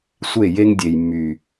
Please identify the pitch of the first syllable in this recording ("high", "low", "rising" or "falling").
falling